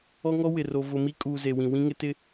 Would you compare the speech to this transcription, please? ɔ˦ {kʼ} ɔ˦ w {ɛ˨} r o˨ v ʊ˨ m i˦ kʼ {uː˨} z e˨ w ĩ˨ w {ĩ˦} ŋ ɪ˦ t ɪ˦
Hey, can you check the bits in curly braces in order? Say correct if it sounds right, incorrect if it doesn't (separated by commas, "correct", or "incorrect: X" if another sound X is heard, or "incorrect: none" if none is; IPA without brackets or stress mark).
incorrect: ŋ, incorrect: ɪ˨, correct, correct